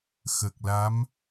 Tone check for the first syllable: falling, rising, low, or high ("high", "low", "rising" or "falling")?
low